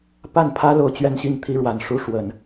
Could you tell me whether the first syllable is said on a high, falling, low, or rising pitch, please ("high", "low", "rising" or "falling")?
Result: falling